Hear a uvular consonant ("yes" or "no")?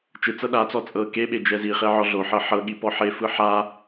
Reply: yes